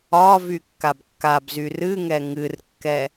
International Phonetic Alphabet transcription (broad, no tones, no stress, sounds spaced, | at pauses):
ɒ v y kː a b kː a b z y r ɨ ŋ ɛ ŋ ɨ r kː ɛ